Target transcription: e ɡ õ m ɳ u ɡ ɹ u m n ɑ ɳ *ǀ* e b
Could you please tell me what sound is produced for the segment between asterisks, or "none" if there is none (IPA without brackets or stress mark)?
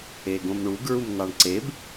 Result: ǀ